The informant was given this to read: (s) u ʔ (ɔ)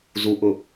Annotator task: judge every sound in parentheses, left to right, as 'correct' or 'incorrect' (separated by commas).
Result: incorrect, incorrect